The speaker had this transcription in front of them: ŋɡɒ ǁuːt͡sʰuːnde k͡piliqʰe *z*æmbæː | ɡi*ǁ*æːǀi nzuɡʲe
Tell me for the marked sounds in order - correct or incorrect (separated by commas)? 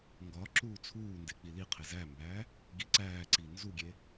correct, incorrect